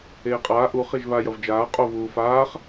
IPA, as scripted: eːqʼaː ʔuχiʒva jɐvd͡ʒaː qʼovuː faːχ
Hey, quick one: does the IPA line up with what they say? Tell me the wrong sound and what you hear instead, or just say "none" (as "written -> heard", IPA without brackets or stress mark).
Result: none